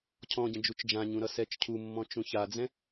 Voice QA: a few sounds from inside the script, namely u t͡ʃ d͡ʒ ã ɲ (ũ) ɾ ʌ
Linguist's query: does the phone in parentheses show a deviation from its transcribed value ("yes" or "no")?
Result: no